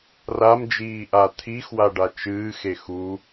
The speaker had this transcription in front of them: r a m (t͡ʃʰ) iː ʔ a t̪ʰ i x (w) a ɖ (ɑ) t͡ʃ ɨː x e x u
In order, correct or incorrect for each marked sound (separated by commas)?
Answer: incorrect, correct, incorrect